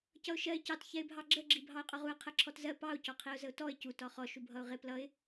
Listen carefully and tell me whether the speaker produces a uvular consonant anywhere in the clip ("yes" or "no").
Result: yes